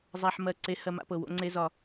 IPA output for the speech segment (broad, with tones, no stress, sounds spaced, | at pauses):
zˤ a˨ ħ m ɜ˦˨ ǀ e˦ h ɜ˦ m a̰˦ p ɤ˨ w o̰˦ ŋ͡ǀ e˦ z ɒ˦